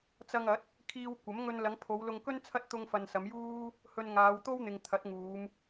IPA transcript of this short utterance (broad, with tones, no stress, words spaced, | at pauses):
t͡sɐ˧ŋɐ˨˥t̚ | kʰiː˧wkʷɐ˨˥mŋɵ˧n lɐ˨˧ŋpʰo˨˧wlʊ˧ŋkɵ˥n t͡sʰɐ˥t̚ t̪ʊ˧ŋfɐ˨n sɐ˨˧mjuː˥ | hɵ˧nŋaː˨˧wt̪o˥w n̪ɪ˨ŋ t̪ʰɐ˨˥t̚ŋuː˨˧m